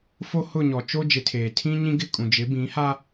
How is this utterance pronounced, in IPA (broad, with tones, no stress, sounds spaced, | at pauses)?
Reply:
f o˦ h ʊ˦˨ ɲ ɔ˨ t͡ʃ o˦ d͡ʒ ɪ˨ tʰ eː˨ tʰ ĩ˦ ɲ ĩ˦ ɡ ɪ˦˨ kʼ ũ˨ d͡ʒ ɪ˨˦ b ĩ˨˦ h a˦